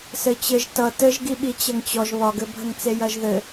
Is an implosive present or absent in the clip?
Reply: present